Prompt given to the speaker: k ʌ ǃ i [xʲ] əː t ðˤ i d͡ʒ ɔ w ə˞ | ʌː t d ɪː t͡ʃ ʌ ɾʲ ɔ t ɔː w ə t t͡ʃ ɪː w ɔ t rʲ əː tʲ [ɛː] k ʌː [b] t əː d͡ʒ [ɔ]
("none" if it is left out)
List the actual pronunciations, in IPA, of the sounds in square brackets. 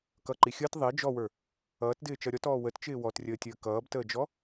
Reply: xʲ, əː, b, ɔ

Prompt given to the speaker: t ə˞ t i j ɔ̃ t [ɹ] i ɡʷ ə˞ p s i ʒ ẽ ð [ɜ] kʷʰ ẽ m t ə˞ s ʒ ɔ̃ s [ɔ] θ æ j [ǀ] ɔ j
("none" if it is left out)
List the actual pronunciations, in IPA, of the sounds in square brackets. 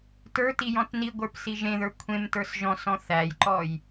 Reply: n, ə˞, ɔ̃, ǃ

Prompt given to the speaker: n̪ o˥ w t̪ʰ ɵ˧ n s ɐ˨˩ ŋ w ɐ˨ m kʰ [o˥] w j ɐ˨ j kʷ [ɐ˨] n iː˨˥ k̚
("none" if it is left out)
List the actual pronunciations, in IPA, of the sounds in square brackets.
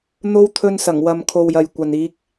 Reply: o˨, ɐ˨

